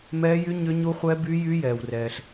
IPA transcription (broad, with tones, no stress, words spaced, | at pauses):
mɛː˦˥jy˦˥ ɲʏ˦˥ɲu˦˥χʷɛ˦˥ by˦˥jy˦˥ jɛː˨wrɛː˨ɬ